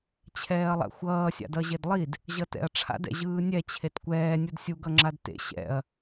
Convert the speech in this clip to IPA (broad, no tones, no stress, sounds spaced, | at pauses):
t͡ɕʰ ɛː ɐ̯ lˠ a̰ xʷ ʌː sʲ a̰ d ʌ ʑ e d lˠ i d | ʑ ʌ t ɛ̰ ɐ̯ ʈ͡ʂʰ a̰ d ɛ̰ ʑ ɯː nʲ ɛ t͡ɕʰ e t kʷ ɛː nʲ u d sʲ u ɡ ʌ ŋ͡ǁ a d t ḛ ɕ ɛ̰ ɐ̯